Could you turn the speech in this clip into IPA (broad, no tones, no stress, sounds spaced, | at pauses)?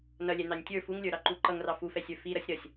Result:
n ʌ lʲ ɛ n ɑ nʲ tʲ ə˞ f u ŋ lʲ ə˞ ɾ ɑ ǃ u ǃ ʌ ŋ r ɑ f u f ɛ sʲ ə˞ f i ɾ ʌ sʲ ɾ ʌ sʲ